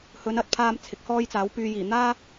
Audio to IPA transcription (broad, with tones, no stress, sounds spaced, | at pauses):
h ɵ˨˧ n ɐ˧ t̚ pʰ aː˧ m t͡sʰ ɪ˨ k̚ h ɔː˥ j t͡s aː˨˥ w p yː˨ j iː˨˩ n̪ aː˥